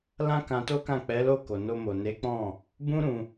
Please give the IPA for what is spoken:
l ã˦ k ã˧ t o˦ k ã˦˨ k͡p ɛ˨˦ l o˦˨ k o˨ n o˧ m o˨ n e˨˦ k͡p ɔ̃˦˨ | b ũ˦ ɾ ũ˧

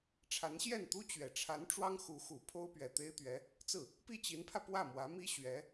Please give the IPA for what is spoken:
ʈ͡ʂʰ a˧˥ n ɕ j ɛ˥˩ n t̪ u˥ t͡ɕ ɥ ɛ˨˩ ʈ͡ʂʰ a˧˥ n ʈ͡ʂ w ɑ˥ ŋ x u˧˥ x u˨˩ pʰ o˥ ʊ̯ p ɥ ɛ˨˩ t̪ e˥ ɪ̯ t̪ ɥ ɛ˧˥ | t͡s ɹ̩˥˩ | p i˥˩ t͡ɕ i˧˥ n pʰ ä˧ p w ä˥˩ m w ä˧˥ m i˥ ɕ ɥ ɛ˧˥

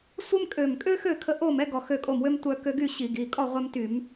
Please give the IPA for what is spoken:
sʷ ə˥ m kʼ ø˧˩ m kʼ ø˥ x ø˥˩ kʰ ə˧ ʔ o˥˩ m ɛ˥ ɡ ɔ˧˩ x ø˥˩ kʼ o˥˩ m w ø˥ m tʷ œ˧ k ø˧ ɡ y˥˩ ɕ i˧˩˧ ɡ i˩˧˩ kʼ ɔ˥˩ ʁʷ ɛ˧ m t y˧˩˧ m

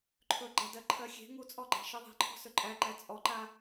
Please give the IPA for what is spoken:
ǃʰ ɵ ɡ͡ǃ a d ɜ ǃʰ ɜ xʲ e̤ ŋ u t͡sʼ ɔ ɡ͡ǃ æ̤ ʃ i ðˤ e̤ ǃʰ ɔ̤ s ɵ ǃʼ æ ǃ æ t͡sʼ ɔ ǃ a

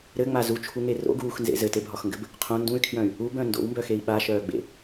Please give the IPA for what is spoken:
ɾ ɘ ŋ͡m a z u t͡ʃʰ u ŋ e r o̰ ɡ uː x n z ḛ z ɘ t e bʱ ɒ x ŋ ɡ ɘ b | qʰ õ n d ũ y̯ kʰ j œ̃ y̯ | u b œ̃ n d o̰ w m b œ x e i̯ ɓ a ʃ œː ɡ͡b ḛ

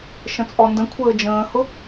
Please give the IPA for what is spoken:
ʃ ə̃ t͡sʼ ɔ n d ə̃ kʷʰ əː d͡ʒ ə̃ː h ʊ

